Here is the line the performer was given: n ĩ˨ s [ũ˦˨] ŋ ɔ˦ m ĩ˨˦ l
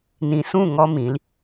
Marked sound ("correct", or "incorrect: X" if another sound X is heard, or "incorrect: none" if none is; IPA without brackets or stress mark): correct